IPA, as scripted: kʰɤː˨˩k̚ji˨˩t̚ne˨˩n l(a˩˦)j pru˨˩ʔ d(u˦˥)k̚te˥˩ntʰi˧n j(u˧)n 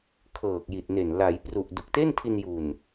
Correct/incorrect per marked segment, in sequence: correct, incorrect: u˨˩, incorrect: u˨˩

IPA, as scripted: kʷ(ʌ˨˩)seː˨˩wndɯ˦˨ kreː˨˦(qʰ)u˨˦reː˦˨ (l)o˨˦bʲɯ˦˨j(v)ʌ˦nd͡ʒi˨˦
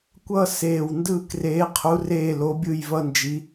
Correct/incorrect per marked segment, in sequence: incorrect: ʌ˦˨, correct, correct, correct

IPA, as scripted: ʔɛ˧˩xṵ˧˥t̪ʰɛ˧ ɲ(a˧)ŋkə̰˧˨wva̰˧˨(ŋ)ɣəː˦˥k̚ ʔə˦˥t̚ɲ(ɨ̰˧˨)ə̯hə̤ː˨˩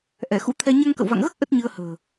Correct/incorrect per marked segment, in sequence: correct, correct, incorrect: ɨ˧

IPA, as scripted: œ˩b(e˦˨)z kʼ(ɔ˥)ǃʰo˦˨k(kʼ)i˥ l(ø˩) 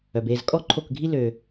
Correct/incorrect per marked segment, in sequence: correct, correct, incorrect: ɡʱ, correct

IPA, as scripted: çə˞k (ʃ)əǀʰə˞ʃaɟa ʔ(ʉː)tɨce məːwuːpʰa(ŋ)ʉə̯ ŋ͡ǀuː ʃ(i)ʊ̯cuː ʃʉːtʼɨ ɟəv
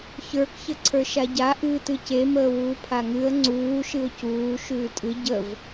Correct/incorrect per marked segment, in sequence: incorrect: ç, incorrect: ɨː, correct, incorrect: ɨ

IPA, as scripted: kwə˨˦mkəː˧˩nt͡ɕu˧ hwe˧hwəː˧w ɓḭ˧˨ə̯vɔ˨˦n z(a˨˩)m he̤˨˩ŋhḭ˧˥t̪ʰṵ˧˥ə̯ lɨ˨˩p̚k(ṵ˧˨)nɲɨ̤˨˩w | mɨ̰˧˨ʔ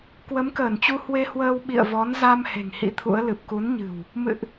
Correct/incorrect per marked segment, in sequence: incorrect: a˧, incorrect: u˨˦

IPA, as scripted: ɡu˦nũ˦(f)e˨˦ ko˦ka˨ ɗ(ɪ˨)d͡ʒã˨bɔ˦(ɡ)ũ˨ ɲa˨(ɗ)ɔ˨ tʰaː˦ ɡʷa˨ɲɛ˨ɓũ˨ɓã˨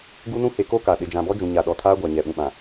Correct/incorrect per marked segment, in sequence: incorrect: h, correct, incorrect: d͡ʒ, correct

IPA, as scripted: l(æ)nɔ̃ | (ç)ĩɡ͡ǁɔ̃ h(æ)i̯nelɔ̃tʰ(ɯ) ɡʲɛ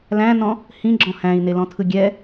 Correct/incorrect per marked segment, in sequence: incorrect: æ̃, incorrect: h, incorrect: æ̃, correct

